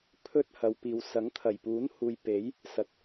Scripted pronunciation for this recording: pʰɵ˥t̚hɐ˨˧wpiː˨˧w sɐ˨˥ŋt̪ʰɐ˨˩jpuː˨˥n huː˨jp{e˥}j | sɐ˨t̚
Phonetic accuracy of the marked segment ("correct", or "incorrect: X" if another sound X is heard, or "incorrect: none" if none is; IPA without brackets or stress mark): incorrect: e˨˥